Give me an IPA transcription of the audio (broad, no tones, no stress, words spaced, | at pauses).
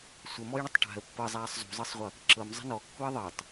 sʷəmɔjɳətˤ ʈa̤ə̯ pːɤzˤaːsˤ zṳzˤɤsˤʁʷɤ | ǁɤmzˤə̤ nɔkːuə̯ ðˤɤtˤ